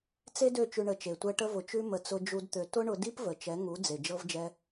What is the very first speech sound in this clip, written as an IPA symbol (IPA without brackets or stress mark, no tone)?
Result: t͡s